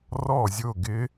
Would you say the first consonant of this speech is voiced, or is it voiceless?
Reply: voiced